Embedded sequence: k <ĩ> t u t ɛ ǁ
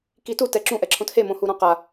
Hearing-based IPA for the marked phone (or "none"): i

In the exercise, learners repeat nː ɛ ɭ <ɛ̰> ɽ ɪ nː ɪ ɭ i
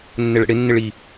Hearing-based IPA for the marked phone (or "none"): ɛ̰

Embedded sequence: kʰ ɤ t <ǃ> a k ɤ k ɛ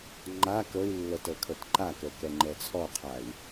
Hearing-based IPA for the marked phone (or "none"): ǃ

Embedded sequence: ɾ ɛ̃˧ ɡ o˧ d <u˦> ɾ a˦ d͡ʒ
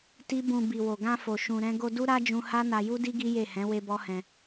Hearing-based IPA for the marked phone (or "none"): u˦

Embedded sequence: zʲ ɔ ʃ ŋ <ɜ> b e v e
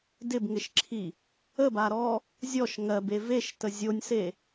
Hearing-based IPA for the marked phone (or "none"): ɜ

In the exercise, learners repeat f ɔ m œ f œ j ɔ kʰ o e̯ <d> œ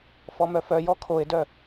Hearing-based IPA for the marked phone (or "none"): d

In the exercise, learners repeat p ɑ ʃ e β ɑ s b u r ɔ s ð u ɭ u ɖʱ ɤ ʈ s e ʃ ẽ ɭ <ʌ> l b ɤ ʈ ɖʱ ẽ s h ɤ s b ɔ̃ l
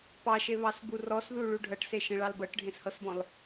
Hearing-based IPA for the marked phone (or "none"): ɑ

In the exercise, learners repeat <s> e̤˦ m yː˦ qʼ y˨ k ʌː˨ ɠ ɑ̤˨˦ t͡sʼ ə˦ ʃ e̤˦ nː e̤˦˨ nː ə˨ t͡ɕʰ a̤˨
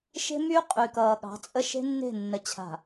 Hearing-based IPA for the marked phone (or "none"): ʃ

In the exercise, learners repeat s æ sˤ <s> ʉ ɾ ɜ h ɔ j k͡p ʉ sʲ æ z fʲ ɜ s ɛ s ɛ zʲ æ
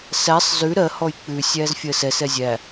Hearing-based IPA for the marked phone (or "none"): z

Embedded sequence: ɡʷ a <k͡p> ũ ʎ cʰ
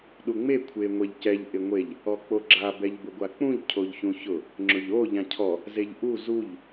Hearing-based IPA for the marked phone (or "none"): k͡p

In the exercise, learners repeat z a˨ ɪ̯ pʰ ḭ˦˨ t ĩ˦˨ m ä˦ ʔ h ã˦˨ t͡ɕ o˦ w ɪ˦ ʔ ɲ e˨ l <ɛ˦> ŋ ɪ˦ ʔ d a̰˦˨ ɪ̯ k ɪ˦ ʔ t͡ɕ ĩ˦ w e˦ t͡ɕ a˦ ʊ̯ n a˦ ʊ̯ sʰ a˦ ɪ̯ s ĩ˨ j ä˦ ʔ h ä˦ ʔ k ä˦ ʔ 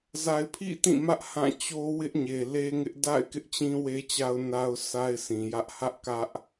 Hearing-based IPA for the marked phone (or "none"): e˦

